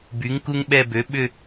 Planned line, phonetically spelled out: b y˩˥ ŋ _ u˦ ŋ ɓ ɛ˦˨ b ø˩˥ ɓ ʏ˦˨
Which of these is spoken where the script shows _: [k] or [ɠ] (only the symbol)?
k